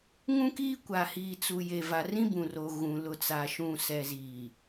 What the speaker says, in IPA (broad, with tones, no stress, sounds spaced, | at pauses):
ŋ ũ˦ k iː˦ kʷ a˨ h iː˨ t͡s u˨ j e˨ v a˨ r ĩ˦ b ũ˨ r o˨ ɣ ũ˨ l ʊ˨ t͡s a˨ ʃ ũ˨ s ɛ˨ z iː˨